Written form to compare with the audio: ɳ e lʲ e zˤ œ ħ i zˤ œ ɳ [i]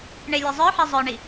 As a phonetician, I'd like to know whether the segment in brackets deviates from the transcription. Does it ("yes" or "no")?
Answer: no